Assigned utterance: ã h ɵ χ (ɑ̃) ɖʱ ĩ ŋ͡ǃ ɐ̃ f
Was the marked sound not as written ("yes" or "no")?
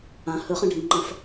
yes